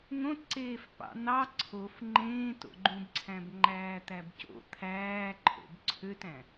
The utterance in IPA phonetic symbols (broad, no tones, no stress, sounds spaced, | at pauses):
ŋ õ t ǀ eː f p ɑ̰ n̪ ɑ ǀʰ o f ŋ͡ǃ ẽː t o̰ ɡ͡ǃ ũ b ǀʰ æ̃ b ŋ͡ǃ æː t̪ æ b c o̰ t̪ʰ æː ǃʰ o̰ b ǀʰ ø t æ̃